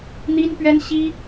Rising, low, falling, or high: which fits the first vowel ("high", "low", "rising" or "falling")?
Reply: high